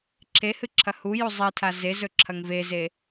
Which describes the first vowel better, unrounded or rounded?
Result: unrounded